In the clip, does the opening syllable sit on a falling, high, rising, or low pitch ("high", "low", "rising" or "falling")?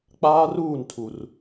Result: high